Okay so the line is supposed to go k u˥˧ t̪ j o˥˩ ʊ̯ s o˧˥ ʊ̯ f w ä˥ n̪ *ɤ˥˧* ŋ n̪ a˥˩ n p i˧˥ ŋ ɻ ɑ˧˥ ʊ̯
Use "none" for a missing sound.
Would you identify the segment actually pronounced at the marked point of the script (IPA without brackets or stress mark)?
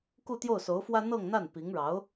ɤ˥˧